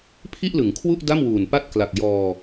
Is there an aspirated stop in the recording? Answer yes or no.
yes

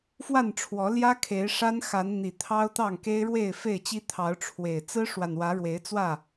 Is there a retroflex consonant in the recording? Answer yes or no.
yes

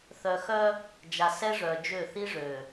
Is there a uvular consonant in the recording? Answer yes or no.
no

